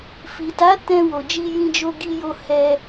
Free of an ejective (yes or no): yes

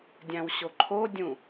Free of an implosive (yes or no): yes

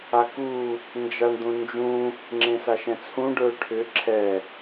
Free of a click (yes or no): no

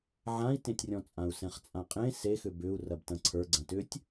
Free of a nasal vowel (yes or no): no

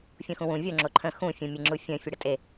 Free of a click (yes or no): no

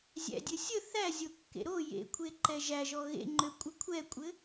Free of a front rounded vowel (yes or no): no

